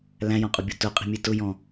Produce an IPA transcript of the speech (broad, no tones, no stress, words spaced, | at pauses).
læ̃jɔ̃qʼʊbʲo tʊqʼi̤mʲe tʊjɔ̃